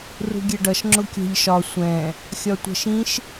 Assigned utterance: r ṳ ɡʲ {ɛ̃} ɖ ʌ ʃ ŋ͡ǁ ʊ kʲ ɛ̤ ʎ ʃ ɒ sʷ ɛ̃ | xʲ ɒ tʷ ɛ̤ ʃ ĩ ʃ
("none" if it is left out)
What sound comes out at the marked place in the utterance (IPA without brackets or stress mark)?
ɛ